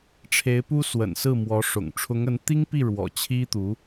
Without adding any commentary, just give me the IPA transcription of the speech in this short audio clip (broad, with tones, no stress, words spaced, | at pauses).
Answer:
ʈ͡ʂʰe˧˥ɪ̯pu˥ swə̰˨˩nsɹ̩˥˩mwɔ˧˥ʂʊ̰˨˩ŋ ʈ͡ʂʰʊ˧˥ŋə˧˥n t̪i˥ŋpi˥˩ ɻwɔ̰˨˩ t͡ɕʰi˥t̪u˧˥